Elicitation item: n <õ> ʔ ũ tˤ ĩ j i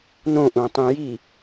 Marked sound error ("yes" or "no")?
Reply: no